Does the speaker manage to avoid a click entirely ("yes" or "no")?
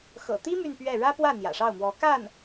yes